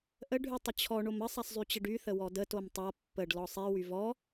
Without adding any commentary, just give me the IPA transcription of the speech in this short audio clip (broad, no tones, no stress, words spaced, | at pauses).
ʔə ɖʱytˤət͡ɕʰɔ ɳomə sˤaszˤyt͡ɕəɖy θəwɔdə tomtˤa pːəɖ lɔsˤi wyvɔ